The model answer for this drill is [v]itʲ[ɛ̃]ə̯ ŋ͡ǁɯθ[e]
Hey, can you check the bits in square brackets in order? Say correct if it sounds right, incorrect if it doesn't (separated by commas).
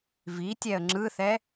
correct, incorrect, incorrect